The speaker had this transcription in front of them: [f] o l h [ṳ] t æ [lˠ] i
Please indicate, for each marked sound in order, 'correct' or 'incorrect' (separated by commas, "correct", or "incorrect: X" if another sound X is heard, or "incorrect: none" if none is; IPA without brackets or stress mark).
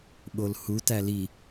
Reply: incorrect: ɓ, incorrect: u, incorrect: l